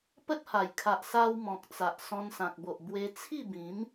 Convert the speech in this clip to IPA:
pə˦t̚ha˨˩jkʰa˨ʔ sa˧w mɔ̃˨k̚ t͡sa˨ʔ sɔ̃˧nsã˨k̚bo˨ʔ bwe˧ t͡sʰi˥˧bĩ˨˦m

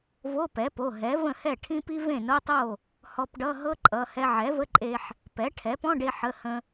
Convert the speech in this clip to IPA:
vo˧˥˧pɛ˩˥po˩˧˩ ɦɛ˩˥və̃˥˩hɛ˥˩ ʈʰĩ˥pi˥ vẽ˥˩no˧˥˧tˤo˥˩ | hɔ˧pɖʌ˧˥˧ɦɤ˥ǃʼʌ˩˧˩ hɛ˧ʕɛ˩˥və˧˥˧ǃʼe˧ħ | pɛ˩˥ʈʰɛ˩˥ pɔ̃˧˥˧ɖe˧ ħə˩˧˩ hə̃˧

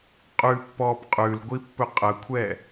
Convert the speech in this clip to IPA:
qʼʉpːɔːp qʼʉlɡʷipːɵ qʼəkʷʰɛ

